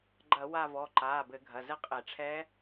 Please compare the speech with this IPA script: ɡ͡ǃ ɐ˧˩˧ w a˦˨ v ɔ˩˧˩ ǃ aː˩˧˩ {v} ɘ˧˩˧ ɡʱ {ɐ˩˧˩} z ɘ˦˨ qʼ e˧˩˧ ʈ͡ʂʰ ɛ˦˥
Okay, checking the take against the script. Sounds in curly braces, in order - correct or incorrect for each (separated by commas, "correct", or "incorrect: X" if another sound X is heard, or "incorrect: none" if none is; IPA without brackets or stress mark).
incorrect: b, correct